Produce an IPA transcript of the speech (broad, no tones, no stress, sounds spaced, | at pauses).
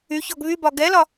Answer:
y ç ɔ ɡ β y b ɒ ɡ ɛ l ɒ